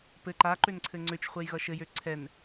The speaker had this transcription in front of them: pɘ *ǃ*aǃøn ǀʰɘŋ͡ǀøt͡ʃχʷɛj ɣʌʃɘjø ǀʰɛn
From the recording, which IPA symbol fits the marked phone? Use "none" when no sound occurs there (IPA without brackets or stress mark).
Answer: ǃ